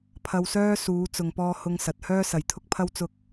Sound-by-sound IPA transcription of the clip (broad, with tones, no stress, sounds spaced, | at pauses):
pʰ ɐ˧ w s œː˥ s uː˨˧ t͡s ʊ˨ ŋ p ɔː˧ h ʊ˧ ŋ s ɐ˨ t̚ h œː˥ s ɐ˨ j t̪ʰ ʊ˥ k̚ pʰ ɐ˥ w t͡s ʊ˥ k̚